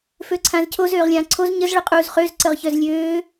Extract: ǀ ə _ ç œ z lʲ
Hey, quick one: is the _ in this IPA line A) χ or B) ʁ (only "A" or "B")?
B